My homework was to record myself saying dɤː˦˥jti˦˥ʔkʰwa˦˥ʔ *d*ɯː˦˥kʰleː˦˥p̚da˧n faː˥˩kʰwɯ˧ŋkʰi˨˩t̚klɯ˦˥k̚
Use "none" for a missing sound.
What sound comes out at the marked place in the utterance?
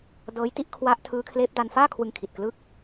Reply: tʰ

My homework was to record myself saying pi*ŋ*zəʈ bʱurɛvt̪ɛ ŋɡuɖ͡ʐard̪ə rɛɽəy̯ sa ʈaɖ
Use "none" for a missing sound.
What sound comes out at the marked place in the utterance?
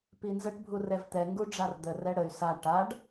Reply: n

